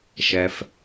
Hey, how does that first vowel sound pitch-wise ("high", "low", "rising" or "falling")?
low